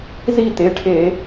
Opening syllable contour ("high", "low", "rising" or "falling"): falling